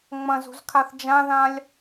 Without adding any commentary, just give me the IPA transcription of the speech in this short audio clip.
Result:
ŋ͡m ɐ̃ z ṳ z kʰ a θ d͡ʒ ã ð ã lʲ

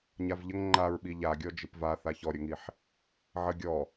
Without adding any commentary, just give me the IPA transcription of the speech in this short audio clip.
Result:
ɲ a v ʎ ə ŋ ŋ͡ǃ a ɹ ɓ i ʎ a ɡʲ ɔ d͡ʒ ɪ p v a θ a ç ɔ ɾʲ ə ŋ i ħ | ʕ ə ɡʲ ɔ

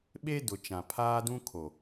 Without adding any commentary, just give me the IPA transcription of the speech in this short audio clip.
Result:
ɓ e˦ d ʊ˨ t͡ʃ ã˨ pʰ aː˦ d ũ˦ kʰ o˨

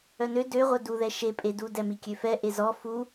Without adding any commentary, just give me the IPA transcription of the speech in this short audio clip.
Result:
œ n ø d ø ʁʷ œ d u ð ɛ ʃ e pʼ e d u d ɛ m i kʲ ø f ɛ ʔ e z ɔ f u

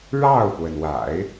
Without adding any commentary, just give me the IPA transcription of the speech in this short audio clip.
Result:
ɻ ɑ˥˩ ʊ̯ p w ə˩ n w a̰˨˩˦ ɪ̯

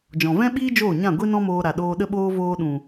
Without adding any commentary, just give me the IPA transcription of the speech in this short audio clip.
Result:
d͡ʒ ɔ̃˨ v ɛ̃˦ ɓ iː˦ d͡ʒ oː˦˨ ɲ ã˦˨ ɡʷ i˦ n ɔ̃˦ m oː˧ ɾ a˨ ɗ oː˧ ɗ ə˧ ɓ oː˧ v oː˧ ɗ ũ˨

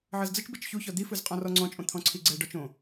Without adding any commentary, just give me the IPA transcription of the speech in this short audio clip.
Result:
ʕ ɤ z d͡z ɯ t͡ʃ b i t͡ʃ ç u ç ɔ d̪ i f ɯ z qʼ ɔ̃ r ɔ ŋ͡ǀ ɔ̃ t͡ʃʼ õ t̪ʰ ɔ̃ ǀʰ i ɡ͡ǀ ɛ ɖ ɔ t͡ʃ õ

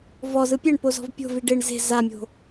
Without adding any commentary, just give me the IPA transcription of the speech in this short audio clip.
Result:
v ɔ z ɯ pʲ ɛ ɳ p o z ɔ̤ v pʲ o̤ v i ɖ e ɳ z e̤ z a mʲ o̤

